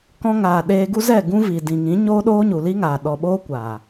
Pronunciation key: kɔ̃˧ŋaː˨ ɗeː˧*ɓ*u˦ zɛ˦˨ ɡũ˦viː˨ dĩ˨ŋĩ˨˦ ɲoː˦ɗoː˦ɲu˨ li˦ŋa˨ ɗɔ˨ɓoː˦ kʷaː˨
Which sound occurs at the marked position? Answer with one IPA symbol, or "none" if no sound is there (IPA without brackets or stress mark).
ɡ